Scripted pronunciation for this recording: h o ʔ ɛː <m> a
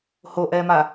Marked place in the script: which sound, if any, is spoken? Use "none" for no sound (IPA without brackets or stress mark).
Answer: m